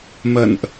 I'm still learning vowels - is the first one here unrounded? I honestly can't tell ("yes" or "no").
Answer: yes